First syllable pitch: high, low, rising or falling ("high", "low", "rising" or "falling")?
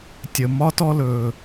low